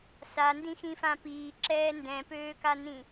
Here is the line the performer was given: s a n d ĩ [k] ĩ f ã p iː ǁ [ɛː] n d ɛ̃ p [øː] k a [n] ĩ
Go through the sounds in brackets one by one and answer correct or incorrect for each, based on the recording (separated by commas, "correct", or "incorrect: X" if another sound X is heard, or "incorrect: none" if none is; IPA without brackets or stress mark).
incorrect: x, correct, correct, correct